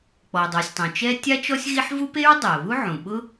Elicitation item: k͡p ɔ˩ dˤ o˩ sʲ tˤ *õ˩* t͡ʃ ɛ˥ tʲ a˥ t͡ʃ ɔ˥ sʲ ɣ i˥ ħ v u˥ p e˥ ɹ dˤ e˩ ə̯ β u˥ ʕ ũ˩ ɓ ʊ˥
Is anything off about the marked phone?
no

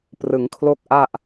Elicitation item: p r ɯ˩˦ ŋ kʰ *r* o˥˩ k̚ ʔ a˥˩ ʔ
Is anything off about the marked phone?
yes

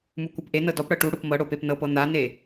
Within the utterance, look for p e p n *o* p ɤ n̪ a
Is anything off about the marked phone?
yes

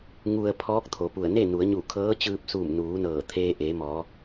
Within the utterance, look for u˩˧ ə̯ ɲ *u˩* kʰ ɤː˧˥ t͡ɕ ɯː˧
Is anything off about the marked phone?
yes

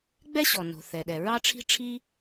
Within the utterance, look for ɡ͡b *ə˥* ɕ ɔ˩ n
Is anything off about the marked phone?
yes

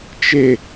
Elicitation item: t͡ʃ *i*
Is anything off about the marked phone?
yes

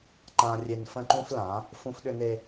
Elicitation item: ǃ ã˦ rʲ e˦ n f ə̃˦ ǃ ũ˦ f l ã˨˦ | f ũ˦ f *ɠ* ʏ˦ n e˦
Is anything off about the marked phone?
yes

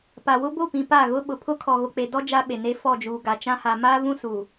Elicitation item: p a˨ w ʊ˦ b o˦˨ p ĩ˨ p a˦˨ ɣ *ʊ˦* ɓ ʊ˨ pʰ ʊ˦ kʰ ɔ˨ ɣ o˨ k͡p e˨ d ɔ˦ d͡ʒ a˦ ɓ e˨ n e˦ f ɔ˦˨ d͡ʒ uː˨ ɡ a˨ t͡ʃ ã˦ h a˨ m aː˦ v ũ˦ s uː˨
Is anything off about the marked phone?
no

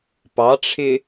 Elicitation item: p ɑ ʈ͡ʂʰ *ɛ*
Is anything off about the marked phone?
yes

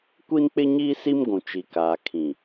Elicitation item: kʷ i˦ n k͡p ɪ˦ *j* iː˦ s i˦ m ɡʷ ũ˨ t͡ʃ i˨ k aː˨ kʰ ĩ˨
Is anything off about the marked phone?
yes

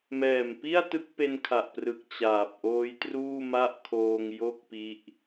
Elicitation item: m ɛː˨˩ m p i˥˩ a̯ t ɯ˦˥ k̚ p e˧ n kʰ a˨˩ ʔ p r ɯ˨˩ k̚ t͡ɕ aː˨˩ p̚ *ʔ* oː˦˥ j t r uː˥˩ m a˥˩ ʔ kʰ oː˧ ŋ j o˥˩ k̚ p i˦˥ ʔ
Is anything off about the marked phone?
no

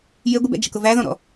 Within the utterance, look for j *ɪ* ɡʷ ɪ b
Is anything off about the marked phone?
no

